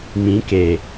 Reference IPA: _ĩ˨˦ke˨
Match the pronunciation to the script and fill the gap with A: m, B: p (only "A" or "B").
A